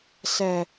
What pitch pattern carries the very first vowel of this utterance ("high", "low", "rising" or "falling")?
low